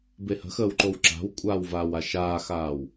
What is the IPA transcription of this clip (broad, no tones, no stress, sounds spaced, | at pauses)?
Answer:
b e h ə̤ x əː w ǃ o w ǁ a̤ w kʷʼ aː w v aː w a ʃ aː x aː w